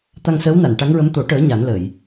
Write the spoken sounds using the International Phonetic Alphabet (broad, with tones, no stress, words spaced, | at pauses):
t̪a˧ŋsəː˧˥wna˨˩˨n ʈa˧˥ŋɹə˧˥m t̪o˨˩˦ ʈəː˨˩˦ ɲa˨˩˦nlə˨˩˨j